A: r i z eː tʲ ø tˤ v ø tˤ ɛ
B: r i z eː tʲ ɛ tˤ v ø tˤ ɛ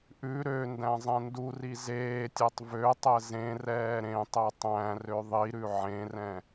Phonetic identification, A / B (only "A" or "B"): B